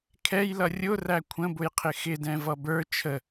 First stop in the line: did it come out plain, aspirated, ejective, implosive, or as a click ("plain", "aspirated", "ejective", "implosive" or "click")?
aspirated